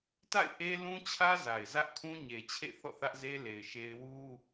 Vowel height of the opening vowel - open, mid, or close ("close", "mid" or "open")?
open